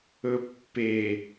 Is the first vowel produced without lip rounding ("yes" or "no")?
no